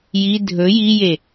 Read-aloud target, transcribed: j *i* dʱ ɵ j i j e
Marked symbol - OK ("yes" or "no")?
yes